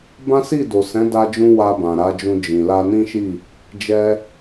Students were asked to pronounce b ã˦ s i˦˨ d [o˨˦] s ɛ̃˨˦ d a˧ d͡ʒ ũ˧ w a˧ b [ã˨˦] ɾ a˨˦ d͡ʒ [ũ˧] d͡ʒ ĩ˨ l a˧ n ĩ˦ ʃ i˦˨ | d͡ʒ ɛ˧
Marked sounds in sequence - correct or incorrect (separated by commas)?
incorrect, incorrect, correct